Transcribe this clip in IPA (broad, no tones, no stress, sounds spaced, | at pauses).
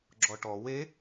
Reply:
ɡ͡ǁ ɔ ʈ ɔ w e